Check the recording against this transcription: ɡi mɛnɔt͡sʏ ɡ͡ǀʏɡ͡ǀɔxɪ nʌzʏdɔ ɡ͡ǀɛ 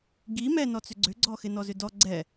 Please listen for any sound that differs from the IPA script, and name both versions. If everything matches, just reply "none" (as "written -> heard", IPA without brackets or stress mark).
ʌ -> ɔ